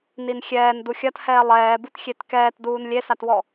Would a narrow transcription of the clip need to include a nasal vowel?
no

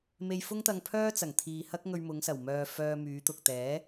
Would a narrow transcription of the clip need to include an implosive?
no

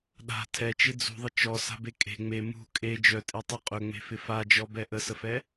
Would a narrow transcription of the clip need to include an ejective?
yes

